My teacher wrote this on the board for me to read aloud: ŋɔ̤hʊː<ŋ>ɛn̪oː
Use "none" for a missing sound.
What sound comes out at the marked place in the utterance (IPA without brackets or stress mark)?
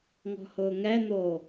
ŋ